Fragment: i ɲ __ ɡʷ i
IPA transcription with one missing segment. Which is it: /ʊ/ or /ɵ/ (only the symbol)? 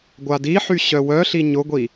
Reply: ʊ